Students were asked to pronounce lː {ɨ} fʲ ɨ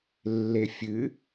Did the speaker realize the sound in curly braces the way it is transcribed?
no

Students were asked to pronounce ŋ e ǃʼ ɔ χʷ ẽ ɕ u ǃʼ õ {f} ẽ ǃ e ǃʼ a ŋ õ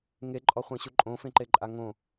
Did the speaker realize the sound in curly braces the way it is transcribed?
yes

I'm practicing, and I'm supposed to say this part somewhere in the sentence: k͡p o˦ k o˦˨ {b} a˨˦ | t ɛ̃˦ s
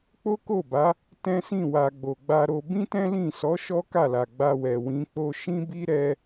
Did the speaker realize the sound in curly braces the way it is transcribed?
yes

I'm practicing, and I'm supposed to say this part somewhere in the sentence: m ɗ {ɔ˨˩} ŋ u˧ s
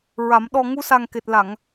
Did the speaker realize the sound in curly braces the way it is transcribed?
yes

